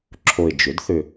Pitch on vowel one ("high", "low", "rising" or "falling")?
low